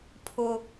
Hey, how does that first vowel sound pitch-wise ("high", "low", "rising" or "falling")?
high